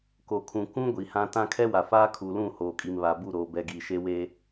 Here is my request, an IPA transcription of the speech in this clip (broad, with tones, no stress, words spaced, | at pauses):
ko˨kʰũ˨ kũ˦ ɡʷi˨hã˦ tã˦ kʰɛ˦wa˨faː˦ kʰu˨lũ˦˨ hoː˨kʼi˨mβa˨bu˦˨ ɾoː˨bɛ˨ɡiː˨ ʃe˦weː˦